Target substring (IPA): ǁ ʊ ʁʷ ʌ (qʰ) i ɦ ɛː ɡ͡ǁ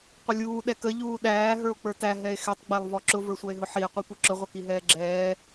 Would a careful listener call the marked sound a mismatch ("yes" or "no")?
yes